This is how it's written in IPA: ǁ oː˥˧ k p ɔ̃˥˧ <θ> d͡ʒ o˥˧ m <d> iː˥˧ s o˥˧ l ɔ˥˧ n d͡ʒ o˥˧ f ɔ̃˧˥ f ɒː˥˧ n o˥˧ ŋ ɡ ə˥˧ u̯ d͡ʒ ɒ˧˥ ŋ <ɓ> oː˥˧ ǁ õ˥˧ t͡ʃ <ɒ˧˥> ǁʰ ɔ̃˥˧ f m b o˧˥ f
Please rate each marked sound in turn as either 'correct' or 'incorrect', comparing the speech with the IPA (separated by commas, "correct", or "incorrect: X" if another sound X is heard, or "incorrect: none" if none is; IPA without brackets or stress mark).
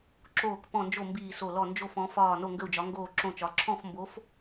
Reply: incorrect: n, incorrect: b, incorrect: ɡ, correct